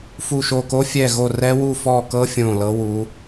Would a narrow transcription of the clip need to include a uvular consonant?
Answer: no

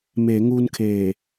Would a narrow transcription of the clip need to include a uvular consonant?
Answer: no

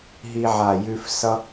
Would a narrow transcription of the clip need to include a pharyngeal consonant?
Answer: yes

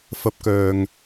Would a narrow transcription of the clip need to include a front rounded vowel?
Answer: yes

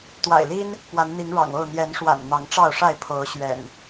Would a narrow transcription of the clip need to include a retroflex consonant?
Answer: yes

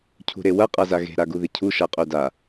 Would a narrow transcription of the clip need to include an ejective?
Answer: yes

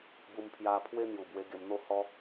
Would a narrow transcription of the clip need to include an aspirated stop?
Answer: yes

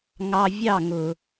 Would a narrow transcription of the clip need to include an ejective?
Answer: no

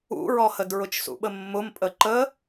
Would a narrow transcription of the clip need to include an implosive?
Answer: yes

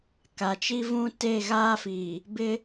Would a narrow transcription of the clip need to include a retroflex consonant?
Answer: no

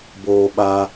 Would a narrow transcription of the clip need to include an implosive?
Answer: yes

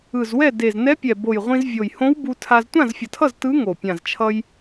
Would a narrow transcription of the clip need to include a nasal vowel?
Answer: yes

